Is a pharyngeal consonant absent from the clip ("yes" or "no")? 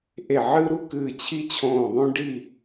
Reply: no